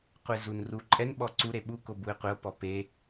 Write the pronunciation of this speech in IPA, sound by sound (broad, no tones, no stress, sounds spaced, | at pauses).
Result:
qʷ e z u n r u ǃʼ ɛ n ɓ ɔ ǀ u ɾ e ɓ u k o b u e̯ qʷ ɪ o̯ p ɔ p e